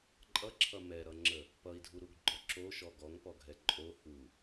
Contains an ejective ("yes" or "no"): yes